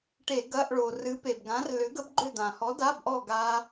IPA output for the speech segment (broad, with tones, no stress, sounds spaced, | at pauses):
ʈ e˧˩˧ ɡ ɐ˧˥˧ ʔ ɭ o˩ r ɨ˨˥ p e˩ b ɡ ã˨˥ r l ʏ˨˥ ɡ ə˦˥ b ɡ͡ǃ ʏ˦˨ d̪ ã˩ h ɔ˨˥ d a˧˥˧ b ʔ ɔ˦˨ ɡ a˦˥